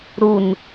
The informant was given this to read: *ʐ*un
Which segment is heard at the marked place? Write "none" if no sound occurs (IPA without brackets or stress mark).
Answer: ɾ